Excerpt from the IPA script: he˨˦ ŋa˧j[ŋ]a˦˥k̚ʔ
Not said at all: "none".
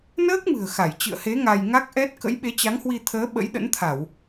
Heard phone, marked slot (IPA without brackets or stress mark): ŋ